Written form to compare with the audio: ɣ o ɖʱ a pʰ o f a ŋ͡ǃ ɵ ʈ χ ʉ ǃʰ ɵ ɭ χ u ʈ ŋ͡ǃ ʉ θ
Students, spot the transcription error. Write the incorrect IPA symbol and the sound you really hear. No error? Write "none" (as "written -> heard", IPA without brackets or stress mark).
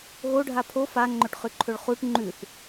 none